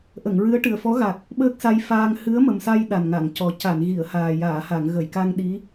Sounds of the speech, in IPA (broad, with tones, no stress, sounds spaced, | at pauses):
ʔ ə˨˩˨ ŋ ɹ ɨ˧˥ ə̯ ʈ ɨ˨˩ ə̯ f ɔ˧˥ ɣ a˨˩ k̚ | ɓ əː˦˥ k̚ s a˧ j f aː˧ ŋ h ɨ˧˥ ə̯ m ə˨˩ m s a˧ j ɗ a˨˩ n ŋ a˨˩˨ ŋ c ɔ˨˩ c a˨˩˨ n ɣ i˨˩˨ ə̯ h aː˨˩ j aː˨˩˨ h a˨˩˨ ŋ ɣ ə˨˩˨ j k a˧ ŋ ɗ i˧˥